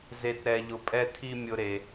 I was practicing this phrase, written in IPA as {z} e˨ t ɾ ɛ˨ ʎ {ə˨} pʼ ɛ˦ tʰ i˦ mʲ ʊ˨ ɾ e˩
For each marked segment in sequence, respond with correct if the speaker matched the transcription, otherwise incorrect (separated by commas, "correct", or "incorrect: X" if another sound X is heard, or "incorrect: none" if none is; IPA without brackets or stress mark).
correct, incorrect: ʊ˨